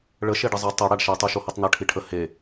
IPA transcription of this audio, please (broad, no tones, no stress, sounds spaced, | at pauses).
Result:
ɭ ə ʃ e ɖ ə zˤ ɐ tˤ ɐ ɽ a ɖ ʃ ɐ tˤ u ʃ o h ɐ tˤ n̪ ɐ ʈʰ i ʈʰ ə h e